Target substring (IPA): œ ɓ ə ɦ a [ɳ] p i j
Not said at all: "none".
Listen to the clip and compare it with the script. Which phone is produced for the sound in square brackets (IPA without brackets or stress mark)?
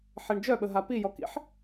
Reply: none